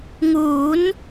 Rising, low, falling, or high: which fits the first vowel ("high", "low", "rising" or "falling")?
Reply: rising